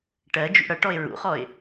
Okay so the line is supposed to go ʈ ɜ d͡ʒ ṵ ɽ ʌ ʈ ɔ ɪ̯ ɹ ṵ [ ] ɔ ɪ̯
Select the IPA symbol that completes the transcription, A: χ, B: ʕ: A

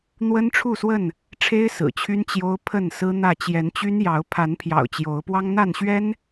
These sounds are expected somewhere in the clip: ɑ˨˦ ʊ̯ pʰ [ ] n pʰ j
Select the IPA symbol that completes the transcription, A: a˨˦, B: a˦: A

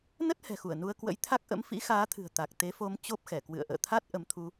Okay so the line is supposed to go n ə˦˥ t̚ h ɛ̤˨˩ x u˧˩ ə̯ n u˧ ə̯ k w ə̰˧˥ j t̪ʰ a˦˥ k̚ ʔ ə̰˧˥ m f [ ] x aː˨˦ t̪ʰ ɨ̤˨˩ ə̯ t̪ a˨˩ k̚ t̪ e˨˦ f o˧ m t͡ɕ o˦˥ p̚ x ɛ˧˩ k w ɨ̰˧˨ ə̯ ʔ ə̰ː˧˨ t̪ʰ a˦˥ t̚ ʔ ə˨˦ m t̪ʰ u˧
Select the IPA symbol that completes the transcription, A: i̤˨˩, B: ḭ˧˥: B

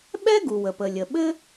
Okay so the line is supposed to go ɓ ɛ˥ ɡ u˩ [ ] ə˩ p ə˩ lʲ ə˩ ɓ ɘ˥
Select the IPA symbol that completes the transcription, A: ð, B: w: B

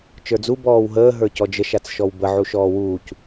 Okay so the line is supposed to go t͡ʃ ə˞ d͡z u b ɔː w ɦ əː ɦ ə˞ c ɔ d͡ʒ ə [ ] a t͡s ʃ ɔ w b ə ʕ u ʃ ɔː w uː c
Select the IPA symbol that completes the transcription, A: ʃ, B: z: A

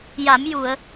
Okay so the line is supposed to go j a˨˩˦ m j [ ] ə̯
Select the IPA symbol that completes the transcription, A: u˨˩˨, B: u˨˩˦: A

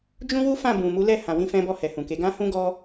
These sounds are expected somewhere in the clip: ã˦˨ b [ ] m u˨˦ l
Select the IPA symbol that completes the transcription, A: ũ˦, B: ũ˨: B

